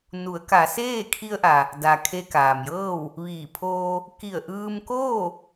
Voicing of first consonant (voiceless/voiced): voiced